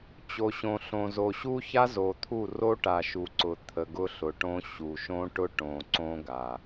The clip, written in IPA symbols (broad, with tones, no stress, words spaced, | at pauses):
t͡ɕo˨ɕõ˨ɬõ˨zo˨ ɕu˦ça˦zo˨t̪ʰu˦˨ ro˦ʈa˨ ʃu˨ǀʊ˨ t̪ʰə˨ɡʊ˦ɬʊ˨ʈõ˦ ɕu˨ʃõ˦ʈʊ˦ ʈõ˨ǀõ˦ɡa˨